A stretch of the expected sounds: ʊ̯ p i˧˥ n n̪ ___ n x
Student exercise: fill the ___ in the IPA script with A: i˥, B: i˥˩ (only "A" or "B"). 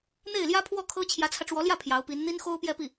A